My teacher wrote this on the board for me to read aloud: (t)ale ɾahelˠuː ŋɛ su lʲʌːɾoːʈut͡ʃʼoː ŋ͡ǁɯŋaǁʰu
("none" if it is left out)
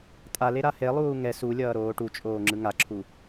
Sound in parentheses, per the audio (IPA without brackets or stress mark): tʼ